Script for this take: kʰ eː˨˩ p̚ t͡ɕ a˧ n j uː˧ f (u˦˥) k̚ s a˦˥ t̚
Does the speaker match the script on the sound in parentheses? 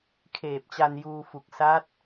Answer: no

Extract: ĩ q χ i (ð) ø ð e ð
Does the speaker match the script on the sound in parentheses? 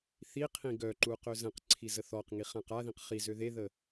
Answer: no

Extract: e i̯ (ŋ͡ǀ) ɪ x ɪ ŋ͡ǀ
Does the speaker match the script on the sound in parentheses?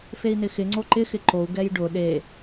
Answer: no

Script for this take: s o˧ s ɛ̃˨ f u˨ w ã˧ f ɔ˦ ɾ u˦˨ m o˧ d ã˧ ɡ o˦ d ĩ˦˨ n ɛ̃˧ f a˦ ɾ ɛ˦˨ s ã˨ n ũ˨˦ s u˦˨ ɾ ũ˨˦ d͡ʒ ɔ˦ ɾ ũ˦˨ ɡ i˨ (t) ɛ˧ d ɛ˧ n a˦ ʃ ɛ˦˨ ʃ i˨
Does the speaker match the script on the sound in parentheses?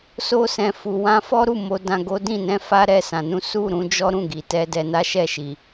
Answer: yes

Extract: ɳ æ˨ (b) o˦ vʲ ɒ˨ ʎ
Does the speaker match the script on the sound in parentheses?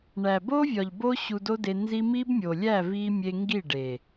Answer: yes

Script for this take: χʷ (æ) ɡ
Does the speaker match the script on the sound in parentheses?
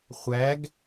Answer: yes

